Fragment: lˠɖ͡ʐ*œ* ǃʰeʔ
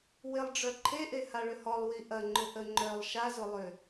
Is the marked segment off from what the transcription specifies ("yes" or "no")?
no